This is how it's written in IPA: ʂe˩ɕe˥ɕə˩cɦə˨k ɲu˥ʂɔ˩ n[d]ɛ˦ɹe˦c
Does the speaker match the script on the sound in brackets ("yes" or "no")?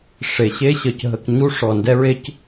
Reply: yes